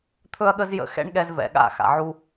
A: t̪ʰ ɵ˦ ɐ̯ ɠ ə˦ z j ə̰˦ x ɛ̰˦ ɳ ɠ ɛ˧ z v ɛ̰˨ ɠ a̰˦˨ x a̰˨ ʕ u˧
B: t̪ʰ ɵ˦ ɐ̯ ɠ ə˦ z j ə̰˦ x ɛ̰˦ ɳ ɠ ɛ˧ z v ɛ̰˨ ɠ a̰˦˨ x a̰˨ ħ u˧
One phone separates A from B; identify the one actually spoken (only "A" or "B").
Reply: A